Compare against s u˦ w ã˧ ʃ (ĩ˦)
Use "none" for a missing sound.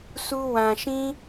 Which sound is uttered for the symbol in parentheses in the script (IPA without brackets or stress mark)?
ĩ˦